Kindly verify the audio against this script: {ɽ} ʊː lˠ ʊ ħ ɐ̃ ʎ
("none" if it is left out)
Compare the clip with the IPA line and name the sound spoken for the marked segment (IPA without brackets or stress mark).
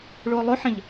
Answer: ɭ